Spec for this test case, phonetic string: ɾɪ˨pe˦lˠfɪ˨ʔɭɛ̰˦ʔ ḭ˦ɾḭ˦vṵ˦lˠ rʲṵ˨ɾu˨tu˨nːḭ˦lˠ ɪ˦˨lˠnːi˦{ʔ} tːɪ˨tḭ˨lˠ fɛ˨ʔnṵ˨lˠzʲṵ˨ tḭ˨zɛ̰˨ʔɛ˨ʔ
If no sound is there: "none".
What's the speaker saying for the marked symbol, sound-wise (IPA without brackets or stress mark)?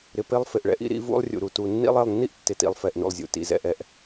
ʔ